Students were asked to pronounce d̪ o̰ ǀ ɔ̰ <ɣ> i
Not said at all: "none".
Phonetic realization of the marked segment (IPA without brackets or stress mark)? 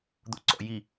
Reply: j